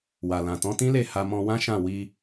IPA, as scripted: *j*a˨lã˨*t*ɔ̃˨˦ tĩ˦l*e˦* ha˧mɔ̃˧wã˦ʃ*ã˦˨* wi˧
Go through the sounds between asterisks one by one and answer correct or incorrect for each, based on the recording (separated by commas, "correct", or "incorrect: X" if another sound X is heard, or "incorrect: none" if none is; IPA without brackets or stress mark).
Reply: incorrect: w, correct, incorrect: e˦˨, correct